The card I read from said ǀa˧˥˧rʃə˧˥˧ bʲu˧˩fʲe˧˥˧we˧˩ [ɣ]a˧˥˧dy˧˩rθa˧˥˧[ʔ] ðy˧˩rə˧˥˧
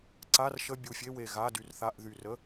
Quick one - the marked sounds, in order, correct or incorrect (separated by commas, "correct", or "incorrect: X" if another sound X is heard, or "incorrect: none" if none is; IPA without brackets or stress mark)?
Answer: correct, correct